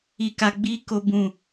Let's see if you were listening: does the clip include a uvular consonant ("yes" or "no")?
no